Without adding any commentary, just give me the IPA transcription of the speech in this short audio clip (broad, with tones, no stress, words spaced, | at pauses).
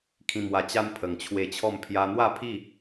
kʰĩ˨˩mwa˨˩ t͡ɕa˦n pʰə˨˩ŋt͡ɕʰwe˧t͡ɕʰɔ˥˧m pʰja˧n̪wa˥˧pʰi˥˧